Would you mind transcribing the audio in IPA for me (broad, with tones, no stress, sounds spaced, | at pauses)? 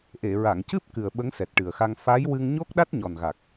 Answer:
ʔ e˨˩˨ ɹ a˨˩˨ ŋ c ɨ˦˥ p̚ k ɨ˨˩ ə̯ ɓ ə˧˥ ŋ s ɛ˨˩ t̚ ʈ ɨ˨˩ ə̯ x a˧ ŋ f a˧˥ j w ɨ˧ ŋ ɲ o˦˥ k̚ ɗ a˦˥ t̚ ɲ ɔ˨˩ n ɣ a˨˩ k̚